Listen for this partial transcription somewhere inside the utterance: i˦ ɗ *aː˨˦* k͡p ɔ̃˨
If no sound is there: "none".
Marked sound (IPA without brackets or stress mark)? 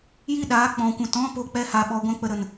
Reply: aː˨˦